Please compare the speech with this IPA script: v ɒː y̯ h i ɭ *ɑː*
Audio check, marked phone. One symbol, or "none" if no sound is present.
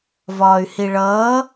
ʌː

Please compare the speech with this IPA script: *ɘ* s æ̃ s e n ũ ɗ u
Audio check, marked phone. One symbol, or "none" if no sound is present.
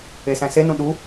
e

